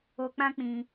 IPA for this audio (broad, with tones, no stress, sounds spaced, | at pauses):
o˧ k͡p ã˦ k͡p ĩ˧